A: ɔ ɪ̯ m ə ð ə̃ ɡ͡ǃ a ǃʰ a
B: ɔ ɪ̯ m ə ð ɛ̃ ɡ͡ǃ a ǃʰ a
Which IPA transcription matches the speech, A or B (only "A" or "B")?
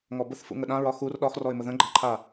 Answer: A